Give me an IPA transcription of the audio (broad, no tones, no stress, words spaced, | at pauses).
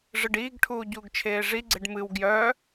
ʐɨɖiːɡʈʰuː ɟuːɡt͡ʃʰeːʐiɡ͡ǀeɖ mɨw ɡjœ